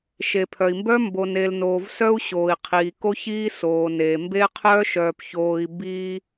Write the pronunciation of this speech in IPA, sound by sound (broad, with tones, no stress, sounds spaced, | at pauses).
ʃ e˨ pʰ œ˨ i̯ m b œ˦ m b o˨ n e˨ l n oː˨ v s œ˦ u̯ ɕ oː˨ i̯ qʰ iː˨ k o˦ ç iː˦ s oː˨ n eː˨ m b e˦ qʰ œː˦ ʃ œː˨ p ç oː˨ i̯ b iː˦